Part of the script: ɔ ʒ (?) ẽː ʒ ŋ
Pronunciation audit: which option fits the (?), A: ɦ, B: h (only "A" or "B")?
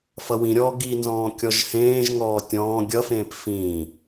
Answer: B